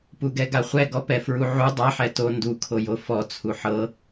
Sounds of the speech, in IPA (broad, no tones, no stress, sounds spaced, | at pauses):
p u ɡ ɛ ɡ a χʷ ɛ ɡ ɔ p ɛ f ɹ u ʕ u dˤ a ħ ɛ t o n d u kʰ o j o f ɔ t͡sʰ u ħ ɤ